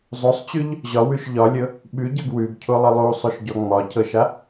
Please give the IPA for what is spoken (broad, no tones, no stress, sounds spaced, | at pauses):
zˤ o sˤ t͡ɕ ʉ ʎ | ʑ ɒ w ʉ ʃ ʎ ɒ lʲ ɤ | ɓ ʉ ɟ ɤ ɡ w ʉ ɡ cʰ o lˠ ə lˠ u sˤ o ʃ ɟ ɔ ŋ͡m ɒ cʰ ɤ ʃ a